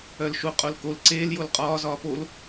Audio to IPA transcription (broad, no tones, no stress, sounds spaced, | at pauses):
œ l ʃ u qʼ o l k o l ǀ eː l j o l qʼ ɒː z ɒː p o l